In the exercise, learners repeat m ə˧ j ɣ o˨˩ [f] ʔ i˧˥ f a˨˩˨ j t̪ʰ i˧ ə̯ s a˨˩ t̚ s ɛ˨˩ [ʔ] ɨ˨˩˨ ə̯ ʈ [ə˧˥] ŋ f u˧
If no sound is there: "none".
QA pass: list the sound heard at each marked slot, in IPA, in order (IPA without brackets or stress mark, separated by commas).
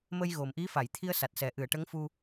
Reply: m, ʔ, ə˧˥